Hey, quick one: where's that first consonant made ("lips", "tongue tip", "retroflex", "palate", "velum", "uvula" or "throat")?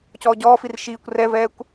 palate